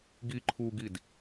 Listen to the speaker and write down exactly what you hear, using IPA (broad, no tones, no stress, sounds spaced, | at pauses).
ɡ i ǃʰ u ɡ i d